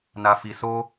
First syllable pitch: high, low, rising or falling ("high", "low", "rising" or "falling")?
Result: low